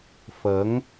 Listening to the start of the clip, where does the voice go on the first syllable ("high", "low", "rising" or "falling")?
rising